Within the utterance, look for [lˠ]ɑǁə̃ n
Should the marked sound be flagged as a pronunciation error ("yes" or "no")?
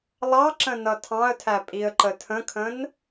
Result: no